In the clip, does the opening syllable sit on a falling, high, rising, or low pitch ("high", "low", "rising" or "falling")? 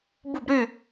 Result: falling